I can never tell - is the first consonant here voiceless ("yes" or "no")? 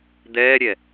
no